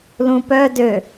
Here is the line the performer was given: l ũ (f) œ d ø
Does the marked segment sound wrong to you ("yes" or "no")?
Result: yes